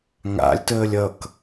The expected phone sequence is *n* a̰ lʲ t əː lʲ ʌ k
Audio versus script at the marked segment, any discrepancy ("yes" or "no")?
yes